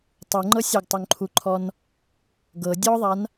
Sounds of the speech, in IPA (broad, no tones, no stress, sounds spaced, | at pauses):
tˤ u ŋ͡ǃ ɤ sʲ æ ɡ tˤ u ŋ ǃʰ u ǃʰ ɔ n | ɡ ɤ dʲ ɔ ðˤ a n